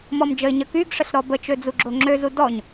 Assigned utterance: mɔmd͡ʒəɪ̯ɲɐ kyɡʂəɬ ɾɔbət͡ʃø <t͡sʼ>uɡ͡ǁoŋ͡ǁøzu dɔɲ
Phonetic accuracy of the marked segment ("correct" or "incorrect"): incorrect